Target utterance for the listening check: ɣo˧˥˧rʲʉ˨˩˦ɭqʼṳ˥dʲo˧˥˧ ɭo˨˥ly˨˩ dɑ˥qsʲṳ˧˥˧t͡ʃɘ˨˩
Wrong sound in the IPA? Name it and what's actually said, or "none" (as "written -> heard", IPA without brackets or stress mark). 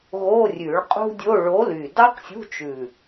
ɘ˨˩ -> ʉ˨˩